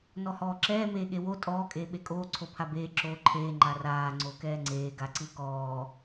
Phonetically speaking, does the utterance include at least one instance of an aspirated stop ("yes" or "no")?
yes